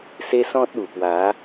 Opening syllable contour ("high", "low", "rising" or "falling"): high